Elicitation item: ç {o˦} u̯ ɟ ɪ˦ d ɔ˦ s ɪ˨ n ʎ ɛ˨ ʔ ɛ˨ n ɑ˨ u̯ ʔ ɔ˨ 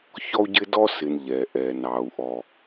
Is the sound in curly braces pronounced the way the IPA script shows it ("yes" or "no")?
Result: no